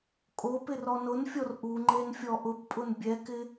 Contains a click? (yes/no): yes